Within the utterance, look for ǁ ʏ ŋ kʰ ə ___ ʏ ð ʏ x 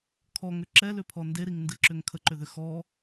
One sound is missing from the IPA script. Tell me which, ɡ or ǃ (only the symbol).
ǃ